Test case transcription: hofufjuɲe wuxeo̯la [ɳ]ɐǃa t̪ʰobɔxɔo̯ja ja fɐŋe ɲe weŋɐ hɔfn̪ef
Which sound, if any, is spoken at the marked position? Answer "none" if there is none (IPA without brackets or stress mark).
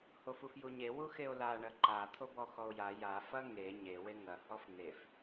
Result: ɳ